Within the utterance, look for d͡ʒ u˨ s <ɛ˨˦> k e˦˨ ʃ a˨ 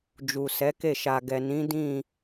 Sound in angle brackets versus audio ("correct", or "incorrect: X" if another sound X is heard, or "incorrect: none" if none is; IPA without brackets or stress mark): correct